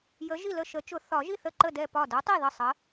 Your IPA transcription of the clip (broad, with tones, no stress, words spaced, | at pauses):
jə˨˥ ʒi˥˩lə˥˩ ʃə˨˩˦t͡ʃʊ˨˩˦ θɒ˨˩˦ʒi˥˩ θə˥˩ǃə˥˩dɛ˥˩ pɒ˥˩ dʊ˨˥tˤi˥˩ ðə˥˩sˤə˨˥